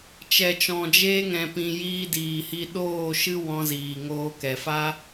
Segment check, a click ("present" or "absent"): absent